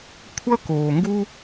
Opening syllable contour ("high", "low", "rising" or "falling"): high